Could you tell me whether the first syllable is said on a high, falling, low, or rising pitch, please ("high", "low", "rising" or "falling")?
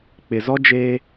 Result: low